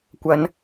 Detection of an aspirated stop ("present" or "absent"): absent